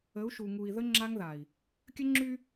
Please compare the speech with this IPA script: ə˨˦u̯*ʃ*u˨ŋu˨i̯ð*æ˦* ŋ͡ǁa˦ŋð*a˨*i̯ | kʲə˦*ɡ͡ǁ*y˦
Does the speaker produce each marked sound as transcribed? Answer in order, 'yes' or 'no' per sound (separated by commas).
yes, no, yes, no